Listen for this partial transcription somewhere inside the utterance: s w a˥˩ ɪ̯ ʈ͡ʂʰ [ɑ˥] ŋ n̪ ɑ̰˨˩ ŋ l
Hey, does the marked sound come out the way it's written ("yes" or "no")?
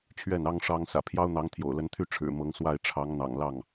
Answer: no